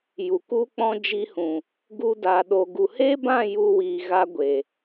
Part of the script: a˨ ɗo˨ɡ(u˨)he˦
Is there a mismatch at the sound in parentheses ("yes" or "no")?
no